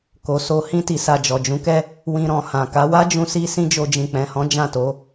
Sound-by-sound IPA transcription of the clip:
k o˨ s o˧ h ĩ˧ t i˨ s a˨ d͡ʒ ɔ˨ d͡ʒ ũ˨˦ k ɛ˦ | w ĩ˧ ɾ ɔ̃˨ h ã˨ k a˨˦ w a˦ d͡ʒ ũ˧ s i˧ s ĩ˦ d͡ʒ o˧ d͡ʒ ĩ˨ k͡p ɛ̃˨ h ɔ̃˨˦ d͡ʒ ã˦˨ t o˨˦

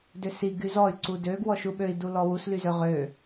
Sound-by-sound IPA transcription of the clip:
d ø s i ɡ y z ɔ y̯ ǀ u d ø ɡ w ɔ ʃ u ɓ ø i̯ d u l ɔ w u s l y z ø ʁ ø

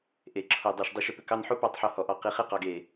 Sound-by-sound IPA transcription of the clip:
ʔ e˩˧ ǁʰ o˧˩ dˤ e˧˩ ʃ dˤ i˧ ʃ ʏ˥˧ p ʏ˧ k ɑ˥˧ n ħ o˥ p ɑ˥˧ tˤ ħ o˧ h ɔ˧˩ ʔ ɑ˧ q i˧ χ e˥ q ɑ˧ ɡ e˧˩

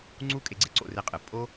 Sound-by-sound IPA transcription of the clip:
ŋ͡ǀ u˦ kʼ e˧ ɡ͡ǀ e˦ ǀ o̰˦˨ r e˧ qʼ ɨ˨ pʼ o˦

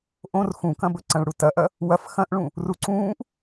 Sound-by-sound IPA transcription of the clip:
ʔ õ r x ũ k ɐ̃ b ɵ ǀ ɐ̃ ɭ ɽ u t ɐ ʔ ɐ | w ɐ f x ɐ̃ ʔ ɭ ũ | r u ǀ ũː ʔ

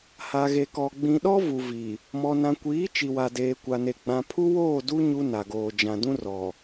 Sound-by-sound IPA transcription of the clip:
h a˨ ɣ e˨ k ɔ˨ ɡ͡b ĩ˨ ɗ ɔ˦ v u˨ v i˨ | m ɔ˨ n ã˨ kʷ iː˨˦ t͡ʃ i˨ w a˨ d eː˨ kʷ a˨ n e˨ ɡ͡b ã˨ pʰ u˦ w oː˦˨ d u˦ ɲ u˦ n a˨ ɡ oː˨ d͡ʒ ã˨ d ũ˦ r ɔ˨

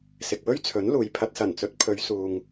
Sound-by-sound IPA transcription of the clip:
s ɪ˨ k̚ w ɵ˥ ɥ t͡sʰ ɵ˨˥ n l uː˨ j pʰ ɐ˨ t̚ s ɐ˨˩ n t͡s ɵ˨˥ t̚ pʰ ɵ˨˧ ɥ s uː˨ ŋ

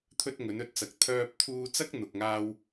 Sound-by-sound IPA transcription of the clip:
t̪ʰ ɵ˥ t̚ ŋ ɵ˨˥ n ɵ˧ t̚ t͡s ɐ˨ k̚ t̪ʰ œː˧ p̚ t̪ʰ uː˧ t͡s ɐ˥ k̚ n̪ ʊ˨ k̚ ŋ aː˥ w

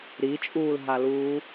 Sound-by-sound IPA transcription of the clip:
ɾ i t͡ʃʼ uː l ɦ a l uː

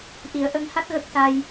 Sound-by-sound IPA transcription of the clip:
ʔ i˨˩˦ ə̯ ʔ ə˧˥ ŋ h a˦˥ t̚ ɣ ə˦˥ k̚ s a˧ j

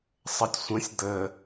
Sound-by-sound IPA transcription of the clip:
sˤ ə tʲ sʷ ə̃ sʲ d̪ ə

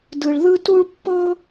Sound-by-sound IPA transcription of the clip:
d ɯ˨ ɭ ð ɯ˦ t u˦ ɭ pː ɤ˦

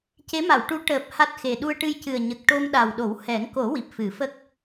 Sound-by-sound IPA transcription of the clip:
c e˧˥ m a˨˩˨ w ʈ u˧˥ ʈ əː˨˩ p̚ h a˦˥ t̚ x e˨˩ ɗ u˧ ə̯ ʈ ɨ˧ j c ɨ˨˩ ə̯ ɲ ə˨˩ k̚ ʈ o˧ m ɗ a˨˩ w ɗ o˨˩˦ w h ɛ˨˩˦ ŋ k o˨˩˦ w i˨˩ p̚ f ɨ˨˩˦ f ə˦˥ k̚

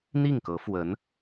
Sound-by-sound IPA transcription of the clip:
n̪ i˥˩ ŋ k ɤ˧˥ f w ə˧˥ n

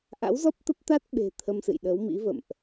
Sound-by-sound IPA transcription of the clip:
ʔ a̰˧˥ w z ɔ˦˥ p̚ t̪ ə˦˥ p̚ t̪ a˦˥ t̚ ɓ e̤˨˩ t̪ʰ ə˧ m s ɨ̰˧˨ j ɗ əː˨˦ w m ḭ˧˥ v ə̰˧˨ m ʔ

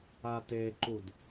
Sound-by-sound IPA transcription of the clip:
a t e ǃ u d

